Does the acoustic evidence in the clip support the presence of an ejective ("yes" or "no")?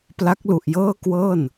no